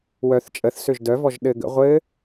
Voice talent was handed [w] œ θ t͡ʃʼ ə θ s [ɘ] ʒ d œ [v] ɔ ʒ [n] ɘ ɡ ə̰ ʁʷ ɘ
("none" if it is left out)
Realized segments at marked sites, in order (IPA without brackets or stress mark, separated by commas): w, ø, v, ɗ